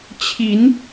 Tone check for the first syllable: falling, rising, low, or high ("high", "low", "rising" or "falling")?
rising